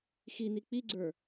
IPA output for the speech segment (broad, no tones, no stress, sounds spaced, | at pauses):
x i n i k͡p i ɡ͡ǀ ə˞